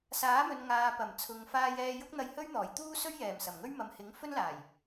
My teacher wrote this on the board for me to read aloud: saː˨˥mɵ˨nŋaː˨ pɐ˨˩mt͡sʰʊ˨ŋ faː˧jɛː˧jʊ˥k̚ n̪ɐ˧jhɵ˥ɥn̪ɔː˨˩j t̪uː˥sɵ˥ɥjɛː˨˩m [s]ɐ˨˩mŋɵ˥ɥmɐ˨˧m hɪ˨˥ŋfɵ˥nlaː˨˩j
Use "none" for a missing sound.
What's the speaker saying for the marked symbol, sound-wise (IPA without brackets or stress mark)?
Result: s